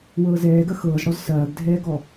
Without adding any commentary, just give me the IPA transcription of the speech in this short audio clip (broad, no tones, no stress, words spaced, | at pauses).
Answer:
wɤːzɛː ɡɐxɤːzɽɔz sɐːɡdʱɛːɡɔ